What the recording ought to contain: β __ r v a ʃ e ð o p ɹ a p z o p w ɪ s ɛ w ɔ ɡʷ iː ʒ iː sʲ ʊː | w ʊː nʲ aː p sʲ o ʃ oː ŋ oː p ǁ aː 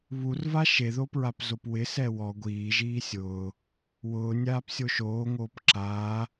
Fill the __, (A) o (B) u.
B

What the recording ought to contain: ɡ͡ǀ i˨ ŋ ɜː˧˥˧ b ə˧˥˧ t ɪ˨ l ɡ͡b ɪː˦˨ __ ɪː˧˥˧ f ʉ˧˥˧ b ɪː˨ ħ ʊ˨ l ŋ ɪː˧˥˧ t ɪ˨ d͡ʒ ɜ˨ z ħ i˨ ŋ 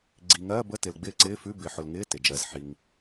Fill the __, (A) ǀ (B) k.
A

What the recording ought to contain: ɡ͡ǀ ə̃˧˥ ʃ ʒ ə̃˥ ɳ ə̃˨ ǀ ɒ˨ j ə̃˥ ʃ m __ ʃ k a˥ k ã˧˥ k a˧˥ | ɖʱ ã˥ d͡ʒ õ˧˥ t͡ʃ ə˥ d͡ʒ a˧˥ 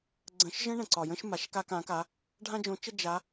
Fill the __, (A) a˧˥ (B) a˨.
B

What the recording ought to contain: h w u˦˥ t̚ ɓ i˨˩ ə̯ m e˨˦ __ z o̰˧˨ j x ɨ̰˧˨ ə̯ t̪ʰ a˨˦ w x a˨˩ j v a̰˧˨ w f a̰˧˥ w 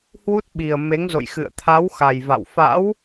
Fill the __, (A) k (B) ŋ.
B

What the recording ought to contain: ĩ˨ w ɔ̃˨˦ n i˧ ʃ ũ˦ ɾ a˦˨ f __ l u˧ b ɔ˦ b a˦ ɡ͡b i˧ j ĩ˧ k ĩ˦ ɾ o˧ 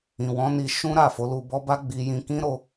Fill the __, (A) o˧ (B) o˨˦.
B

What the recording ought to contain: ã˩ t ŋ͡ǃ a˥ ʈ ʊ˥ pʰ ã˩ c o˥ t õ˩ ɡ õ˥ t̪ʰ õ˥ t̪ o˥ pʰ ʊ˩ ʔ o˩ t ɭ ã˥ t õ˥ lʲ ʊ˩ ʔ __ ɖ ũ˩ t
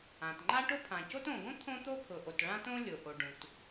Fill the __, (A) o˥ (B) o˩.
B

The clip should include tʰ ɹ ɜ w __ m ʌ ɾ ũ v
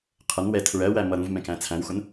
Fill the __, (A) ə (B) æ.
B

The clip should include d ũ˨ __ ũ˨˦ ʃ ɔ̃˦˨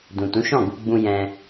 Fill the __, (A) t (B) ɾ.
A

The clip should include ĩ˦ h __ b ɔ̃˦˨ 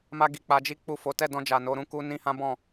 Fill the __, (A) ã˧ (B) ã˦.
B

